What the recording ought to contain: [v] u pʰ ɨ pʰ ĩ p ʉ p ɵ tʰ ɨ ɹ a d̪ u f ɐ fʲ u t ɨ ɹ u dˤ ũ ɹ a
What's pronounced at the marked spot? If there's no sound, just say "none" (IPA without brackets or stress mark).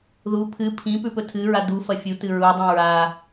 ð